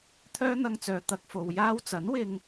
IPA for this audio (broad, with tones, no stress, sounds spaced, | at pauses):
t̪ʰ œː˥ n̪ ɐ˧ ŋ t͡s œː˨ t̪ ɐ˧ k̚ f o˨ w j aː˥ w t͡s ɐ˨˥ n w ɪ˧ ŋ